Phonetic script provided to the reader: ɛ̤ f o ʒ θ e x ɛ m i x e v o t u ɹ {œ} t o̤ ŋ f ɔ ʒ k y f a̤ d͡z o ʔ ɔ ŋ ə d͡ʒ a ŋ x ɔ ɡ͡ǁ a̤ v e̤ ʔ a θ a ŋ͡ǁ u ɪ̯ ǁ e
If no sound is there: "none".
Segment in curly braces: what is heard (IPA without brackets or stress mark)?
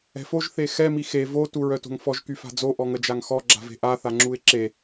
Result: œ